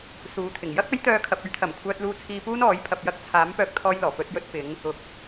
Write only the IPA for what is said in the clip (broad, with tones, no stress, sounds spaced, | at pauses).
s uː˨˥ t̪ʰ ɪ˨˩ ŋ j ɐ˥ k̚ ɐ˨˥ j t̪ œː˨ kʰ ɐ˨ p̚ ɵ˨˥ ɥ t̪ʰ ɐ˨˩ m kʷʰ œː˨ t̚ l uː˨ t͡sʰ iː˨ p uː˧ n ɔː˨˥ j pʰ ɐ˨ p̚ j ɐ˧ k̚ t͡sʰ aː˨˥ m p œː˧ k̚ t̪ʰ ɔː˧ j l ɔː˨˩ p ɵ˧ t̚ j ɵ˧ t̚ f ɪ˨˧ ŋ | ʊ˨ k̚